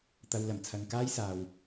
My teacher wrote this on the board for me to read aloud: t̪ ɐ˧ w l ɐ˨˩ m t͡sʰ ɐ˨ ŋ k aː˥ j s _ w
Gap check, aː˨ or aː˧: aː˧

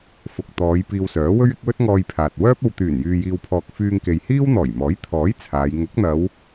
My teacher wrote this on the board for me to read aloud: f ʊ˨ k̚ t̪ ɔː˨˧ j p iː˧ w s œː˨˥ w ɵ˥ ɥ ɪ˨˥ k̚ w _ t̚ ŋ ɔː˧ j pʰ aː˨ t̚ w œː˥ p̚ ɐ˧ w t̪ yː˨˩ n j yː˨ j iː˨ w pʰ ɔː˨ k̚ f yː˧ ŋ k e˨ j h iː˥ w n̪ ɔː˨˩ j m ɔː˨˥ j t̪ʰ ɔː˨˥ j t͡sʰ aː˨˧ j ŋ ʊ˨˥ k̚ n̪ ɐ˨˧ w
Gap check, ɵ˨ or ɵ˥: ɵ˥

